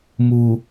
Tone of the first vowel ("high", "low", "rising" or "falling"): low